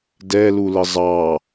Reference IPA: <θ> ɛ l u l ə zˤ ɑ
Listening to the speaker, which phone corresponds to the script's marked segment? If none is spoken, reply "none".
d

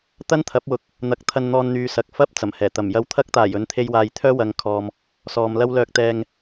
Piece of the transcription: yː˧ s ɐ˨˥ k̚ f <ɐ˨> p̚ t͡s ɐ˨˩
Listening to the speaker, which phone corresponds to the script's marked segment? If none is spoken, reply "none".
ɐ˥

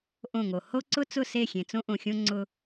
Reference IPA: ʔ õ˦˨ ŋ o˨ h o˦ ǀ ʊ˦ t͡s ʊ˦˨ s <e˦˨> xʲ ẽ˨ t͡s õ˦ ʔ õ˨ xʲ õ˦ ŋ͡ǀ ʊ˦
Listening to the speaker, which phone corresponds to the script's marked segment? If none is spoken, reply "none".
e˦˨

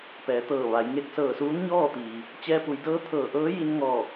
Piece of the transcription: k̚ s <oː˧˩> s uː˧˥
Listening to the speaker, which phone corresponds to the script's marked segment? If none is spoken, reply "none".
ɤː˧˩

